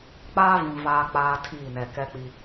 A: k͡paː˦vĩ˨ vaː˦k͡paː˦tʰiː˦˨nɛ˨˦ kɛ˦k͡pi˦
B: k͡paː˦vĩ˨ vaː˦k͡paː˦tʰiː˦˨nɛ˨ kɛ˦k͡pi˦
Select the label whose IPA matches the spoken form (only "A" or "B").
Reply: B